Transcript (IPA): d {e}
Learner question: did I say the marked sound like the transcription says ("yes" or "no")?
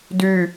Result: no